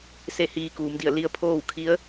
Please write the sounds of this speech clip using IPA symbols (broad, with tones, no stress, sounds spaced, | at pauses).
s e˥˨ h iː˧ k uː˩˧ m d i˧˩ ə̯ l i˧ ə̯ pʰ oː˥˨ w kʰ i˧˥ ə̯